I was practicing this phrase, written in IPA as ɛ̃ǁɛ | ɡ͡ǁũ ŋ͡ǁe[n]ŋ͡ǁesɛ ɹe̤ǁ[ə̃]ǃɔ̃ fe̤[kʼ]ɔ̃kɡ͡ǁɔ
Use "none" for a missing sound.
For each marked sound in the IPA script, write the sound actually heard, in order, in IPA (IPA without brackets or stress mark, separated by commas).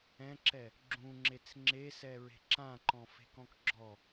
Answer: t͡s, ã, k